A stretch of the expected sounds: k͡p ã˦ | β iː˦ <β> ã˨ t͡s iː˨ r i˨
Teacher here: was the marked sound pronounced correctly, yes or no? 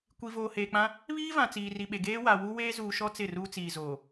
no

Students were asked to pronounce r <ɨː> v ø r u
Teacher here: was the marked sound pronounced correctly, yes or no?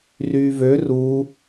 no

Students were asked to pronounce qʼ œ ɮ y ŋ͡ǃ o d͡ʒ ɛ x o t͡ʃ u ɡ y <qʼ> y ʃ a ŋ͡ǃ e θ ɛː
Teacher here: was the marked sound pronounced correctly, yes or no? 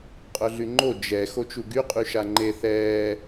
yes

